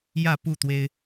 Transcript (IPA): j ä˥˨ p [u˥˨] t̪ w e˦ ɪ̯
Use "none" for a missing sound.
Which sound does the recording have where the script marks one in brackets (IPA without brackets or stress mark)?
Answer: u˥˨